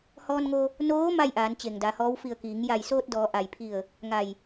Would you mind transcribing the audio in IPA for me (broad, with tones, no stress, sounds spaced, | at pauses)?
h ɔː˧ n ŋ o˧ | n oː˧˥ m a˥˨ j ʔ aː˩˧ n t͡ɕ e˩ ŋ d a˩˧ h ɔː˧˥ w f i˧˩ ə̯ k iː˩˧ ŋ j a˧˩ j s oː˧ t̚ d ɔː˩˧ ʔ a˩ j pʰ i˧˩ ə̯ | ŋ a˧˩ j